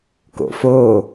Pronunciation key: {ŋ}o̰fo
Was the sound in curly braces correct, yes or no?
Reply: no